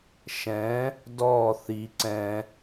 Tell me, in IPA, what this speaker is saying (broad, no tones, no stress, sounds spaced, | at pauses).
ʃ ɛ̃ | d ɔ θ i ǀ ɛ̃